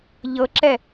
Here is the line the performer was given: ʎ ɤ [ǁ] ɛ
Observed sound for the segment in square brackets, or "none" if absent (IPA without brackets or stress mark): ǁ